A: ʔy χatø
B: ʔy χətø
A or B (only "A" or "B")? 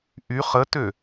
B